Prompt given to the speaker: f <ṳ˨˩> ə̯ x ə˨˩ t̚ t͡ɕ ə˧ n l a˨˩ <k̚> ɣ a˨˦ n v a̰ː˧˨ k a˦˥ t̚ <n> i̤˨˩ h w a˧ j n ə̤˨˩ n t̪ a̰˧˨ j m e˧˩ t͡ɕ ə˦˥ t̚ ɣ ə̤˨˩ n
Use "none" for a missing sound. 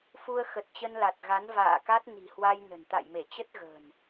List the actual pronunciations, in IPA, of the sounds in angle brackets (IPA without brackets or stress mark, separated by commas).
u˧, t̚, n